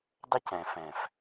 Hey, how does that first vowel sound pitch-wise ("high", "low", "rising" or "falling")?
high